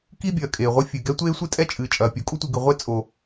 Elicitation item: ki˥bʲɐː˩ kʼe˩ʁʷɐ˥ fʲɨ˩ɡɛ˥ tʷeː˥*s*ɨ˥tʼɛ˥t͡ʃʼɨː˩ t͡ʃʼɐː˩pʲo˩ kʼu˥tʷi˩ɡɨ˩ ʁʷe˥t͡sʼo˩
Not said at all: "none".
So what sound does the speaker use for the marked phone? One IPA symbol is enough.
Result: sʷ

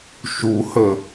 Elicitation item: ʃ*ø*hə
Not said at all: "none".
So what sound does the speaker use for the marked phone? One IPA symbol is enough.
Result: u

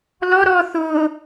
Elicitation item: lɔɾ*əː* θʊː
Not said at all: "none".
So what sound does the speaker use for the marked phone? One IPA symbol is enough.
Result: ɔː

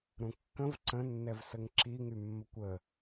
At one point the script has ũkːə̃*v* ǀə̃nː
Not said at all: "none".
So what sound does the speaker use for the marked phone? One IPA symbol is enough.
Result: v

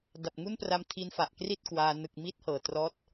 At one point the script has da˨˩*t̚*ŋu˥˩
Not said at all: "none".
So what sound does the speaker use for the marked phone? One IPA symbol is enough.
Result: p̚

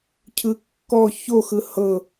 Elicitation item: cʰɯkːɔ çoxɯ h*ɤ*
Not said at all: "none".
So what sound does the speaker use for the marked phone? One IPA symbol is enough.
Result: ɤ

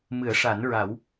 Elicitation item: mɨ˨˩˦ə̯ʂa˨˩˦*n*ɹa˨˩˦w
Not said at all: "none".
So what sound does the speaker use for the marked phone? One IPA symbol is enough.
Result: n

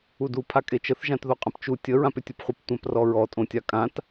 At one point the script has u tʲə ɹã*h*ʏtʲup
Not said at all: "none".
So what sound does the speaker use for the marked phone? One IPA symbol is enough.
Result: p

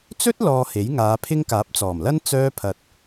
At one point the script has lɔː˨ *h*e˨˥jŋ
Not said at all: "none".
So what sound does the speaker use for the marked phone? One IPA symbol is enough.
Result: h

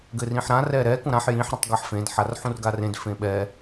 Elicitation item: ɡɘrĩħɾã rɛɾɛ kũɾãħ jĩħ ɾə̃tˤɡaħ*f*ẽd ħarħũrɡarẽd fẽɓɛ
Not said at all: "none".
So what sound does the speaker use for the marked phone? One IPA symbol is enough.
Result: f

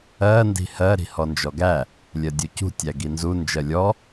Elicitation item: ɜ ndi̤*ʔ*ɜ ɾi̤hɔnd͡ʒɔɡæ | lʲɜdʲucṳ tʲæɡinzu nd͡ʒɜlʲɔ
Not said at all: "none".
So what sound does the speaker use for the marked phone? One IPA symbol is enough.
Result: h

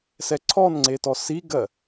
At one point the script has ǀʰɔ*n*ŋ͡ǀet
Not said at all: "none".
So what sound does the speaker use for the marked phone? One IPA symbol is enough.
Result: n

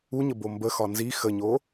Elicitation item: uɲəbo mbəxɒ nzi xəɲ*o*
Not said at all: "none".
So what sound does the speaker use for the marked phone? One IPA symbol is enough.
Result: o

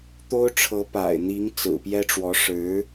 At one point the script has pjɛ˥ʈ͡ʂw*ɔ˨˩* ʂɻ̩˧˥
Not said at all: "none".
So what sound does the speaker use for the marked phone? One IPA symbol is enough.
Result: ɔ˧˥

